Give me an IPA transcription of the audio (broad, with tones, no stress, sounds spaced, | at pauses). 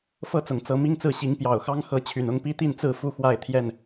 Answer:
f ɤ˥˨ t͡s ʊ˨˩ ŋ t͡s ɤ˨˦ m i˦ ŋ t͡s ɹ̩˥˨ ɕ i˨˦ ŋ p j ɑ˨˩ ʊ̯ x ɑ˦ ŋ x ɤ˨˦ t͡ɕʰ y˨˩ n ʊ˥˨ ŋ p i˦ t̪ i˥˨ n t͡s ɹ̩˥˨ f u˥˨ x w a˥˨ ɪ̯ t̪ʰ j ɛ˥˨ n